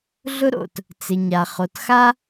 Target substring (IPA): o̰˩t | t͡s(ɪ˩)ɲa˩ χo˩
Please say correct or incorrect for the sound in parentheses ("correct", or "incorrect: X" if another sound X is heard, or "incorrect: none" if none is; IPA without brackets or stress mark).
correct